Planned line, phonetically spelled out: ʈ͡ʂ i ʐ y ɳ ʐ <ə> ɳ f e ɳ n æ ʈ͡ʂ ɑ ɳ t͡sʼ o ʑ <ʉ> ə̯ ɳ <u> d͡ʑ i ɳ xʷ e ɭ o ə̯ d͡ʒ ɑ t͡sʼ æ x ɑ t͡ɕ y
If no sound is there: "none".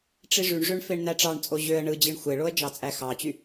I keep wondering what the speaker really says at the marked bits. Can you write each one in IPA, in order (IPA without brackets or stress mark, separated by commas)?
ø, ø, ɯ